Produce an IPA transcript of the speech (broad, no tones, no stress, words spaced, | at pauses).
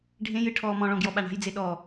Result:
ɖʱẽjɨ ʈʰɔːmɔ̃ɭɔ̃ ɡjɔɓaɳa̤jd͡ze ɗɔ